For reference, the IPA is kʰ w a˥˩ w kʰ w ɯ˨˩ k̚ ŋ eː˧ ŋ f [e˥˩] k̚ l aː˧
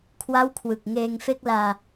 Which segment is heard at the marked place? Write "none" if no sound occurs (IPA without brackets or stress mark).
e˥˩